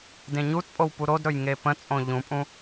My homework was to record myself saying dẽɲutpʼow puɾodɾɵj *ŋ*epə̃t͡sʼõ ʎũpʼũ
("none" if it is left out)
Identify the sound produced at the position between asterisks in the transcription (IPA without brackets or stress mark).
ŋ